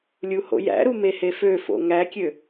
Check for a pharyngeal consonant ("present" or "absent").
absent